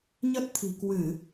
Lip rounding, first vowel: unrounded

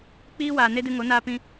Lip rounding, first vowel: unrounded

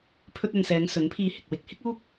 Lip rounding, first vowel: rounded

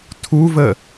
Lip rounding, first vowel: rounded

